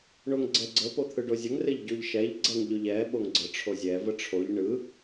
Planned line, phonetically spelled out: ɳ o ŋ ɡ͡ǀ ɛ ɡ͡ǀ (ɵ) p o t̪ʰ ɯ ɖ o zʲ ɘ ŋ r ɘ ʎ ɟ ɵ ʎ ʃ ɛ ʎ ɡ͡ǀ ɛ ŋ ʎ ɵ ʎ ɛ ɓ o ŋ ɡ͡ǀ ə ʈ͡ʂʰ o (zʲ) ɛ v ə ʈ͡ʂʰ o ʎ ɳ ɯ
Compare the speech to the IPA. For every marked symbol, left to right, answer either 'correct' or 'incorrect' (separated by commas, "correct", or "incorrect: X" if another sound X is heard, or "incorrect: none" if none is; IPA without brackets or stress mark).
incorrect: ə, correct